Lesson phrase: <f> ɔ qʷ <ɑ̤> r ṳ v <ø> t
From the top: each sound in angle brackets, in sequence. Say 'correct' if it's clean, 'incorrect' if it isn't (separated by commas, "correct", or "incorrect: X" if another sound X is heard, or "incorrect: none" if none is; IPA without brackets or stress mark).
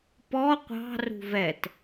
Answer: incorrect: p, correct, incorrect: ɛ